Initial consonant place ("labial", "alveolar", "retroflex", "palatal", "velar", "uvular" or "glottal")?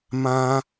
labial